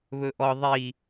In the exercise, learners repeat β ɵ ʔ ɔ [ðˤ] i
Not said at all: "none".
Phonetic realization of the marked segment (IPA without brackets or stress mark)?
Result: ðˤ